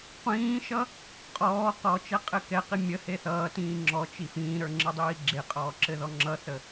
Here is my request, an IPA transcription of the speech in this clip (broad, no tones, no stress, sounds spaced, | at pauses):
qʷ ĩː ʃ ʌ | qʼ ɔː q ɔ t͡ʃ ɛ qʼ ɘ k ɛ q i mʲ ə h e θ ʌː t ĩː ŋ͡ǁ ɔ t͡ʃ i f ĩː ɾ ə˞ ŋ͡ǁ ɘ dˤ iː ɡ͡ǁ e qʼ ɔː ǁ ɘ ð ɔ ŋ͡ǁ ʌ θ ə